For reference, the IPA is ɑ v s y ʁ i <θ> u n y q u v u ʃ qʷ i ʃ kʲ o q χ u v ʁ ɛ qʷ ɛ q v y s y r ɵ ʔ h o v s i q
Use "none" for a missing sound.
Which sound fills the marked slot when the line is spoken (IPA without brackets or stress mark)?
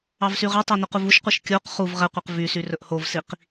tˤ